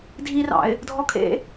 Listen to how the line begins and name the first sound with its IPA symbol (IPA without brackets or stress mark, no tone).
dʱ